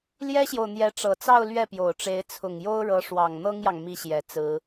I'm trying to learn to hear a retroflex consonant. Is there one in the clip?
yes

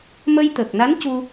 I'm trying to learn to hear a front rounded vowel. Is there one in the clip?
no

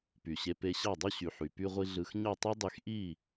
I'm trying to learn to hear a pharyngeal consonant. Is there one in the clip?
yes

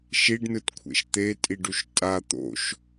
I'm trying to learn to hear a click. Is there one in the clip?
no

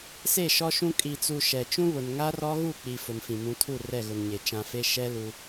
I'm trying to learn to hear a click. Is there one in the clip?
no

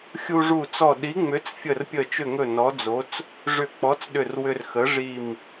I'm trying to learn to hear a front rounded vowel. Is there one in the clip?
yes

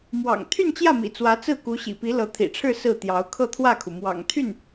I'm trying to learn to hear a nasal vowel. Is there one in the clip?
no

